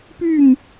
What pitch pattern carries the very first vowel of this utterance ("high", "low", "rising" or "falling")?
falling